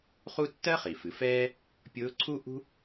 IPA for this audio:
χ u˥ tː ɜ˥ χ i˩ f ɨ˩˧ f ɛː˥ | pʲ ʊː˧˥ ǀʰ u˥ ʔ ṳ˥

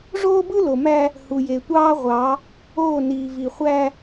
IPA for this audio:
ʐ oː˦ b ɯ˦ l o˨ m æ˦ | h u˨ j e˨ tʷ ɑː˦ ʁʷ ɑ˨˦ | oː˦˨ n iː˨ v i˨ χʷ æ˦

